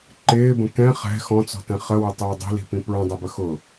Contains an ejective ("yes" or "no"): no